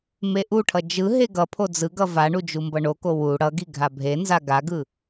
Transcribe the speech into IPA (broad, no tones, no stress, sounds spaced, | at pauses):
m e ʔ u ʈʰ ʌ d͡ʒ ɯ ɦ e ɡ ʌ pʰ o d͡z ɯ ɡ ʌ v a ɳ u d͡ʒ u m b ʌ ɳ o k o w u ɽ ʌ ɡ i ɡʱ a bʱ e n z a ɡ a ɡ ɯ